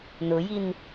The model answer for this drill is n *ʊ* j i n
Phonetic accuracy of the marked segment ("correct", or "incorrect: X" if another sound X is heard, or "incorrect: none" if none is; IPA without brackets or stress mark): correct